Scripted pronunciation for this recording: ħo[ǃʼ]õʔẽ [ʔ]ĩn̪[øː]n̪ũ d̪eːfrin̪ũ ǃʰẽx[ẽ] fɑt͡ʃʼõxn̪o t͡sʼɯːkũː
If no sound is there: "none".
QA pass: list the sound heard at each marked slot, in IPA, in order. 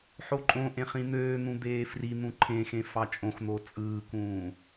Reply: ǃʼ, χ, øː, ẽ

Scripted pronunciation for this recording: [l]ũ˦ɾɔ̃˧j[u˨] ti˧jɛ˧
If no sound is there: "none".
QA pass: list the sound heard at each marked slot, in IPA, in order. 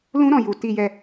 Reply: l, u˨

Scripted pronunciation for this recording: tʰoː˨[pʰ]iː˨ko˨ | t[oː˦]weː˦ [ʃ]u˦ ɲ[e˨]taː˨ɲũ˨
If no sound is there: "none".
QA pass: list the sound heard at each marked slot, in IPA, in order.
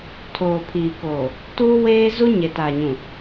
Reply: pʰ, uː˦, z, e˨

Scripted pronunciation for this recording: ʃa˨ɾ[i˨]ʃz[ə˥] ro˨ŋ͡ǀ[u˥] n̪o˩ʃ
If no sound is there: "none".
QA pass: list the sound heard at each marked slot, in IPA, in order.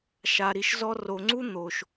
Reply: i˨, ɔ˥, u˥

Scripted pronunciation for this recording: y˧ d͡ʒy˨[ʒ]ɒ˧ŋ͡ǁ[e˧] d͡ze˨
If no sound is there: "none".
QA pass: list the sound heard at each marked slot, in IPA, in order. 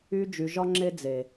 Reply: ʒ, e˧

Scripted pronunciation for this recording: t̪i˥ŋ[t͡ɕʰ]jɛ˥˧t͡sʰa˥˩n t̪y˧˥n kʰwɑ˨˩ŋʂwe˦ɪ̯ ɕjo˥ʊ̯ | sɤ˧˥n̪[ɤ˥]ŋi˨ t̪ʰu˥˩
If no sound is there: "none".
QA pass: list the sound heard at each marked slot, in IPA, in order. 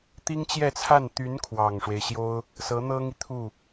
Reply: t͡ɕ, ɤ˥

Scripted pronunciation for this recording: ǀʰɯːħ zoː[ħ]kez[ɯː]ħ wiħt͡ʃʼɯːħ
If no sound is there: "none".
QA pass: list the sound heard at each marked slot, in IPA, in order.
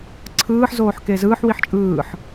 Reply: ħ, ɯː

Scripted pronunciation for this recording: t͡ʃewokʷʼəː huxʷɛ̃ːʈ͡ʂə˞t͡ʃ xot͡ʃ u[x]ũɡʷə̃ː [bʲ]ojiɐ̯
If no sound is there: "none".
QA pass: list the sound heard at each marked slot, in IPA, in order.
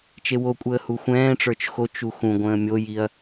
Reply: x, mʲ

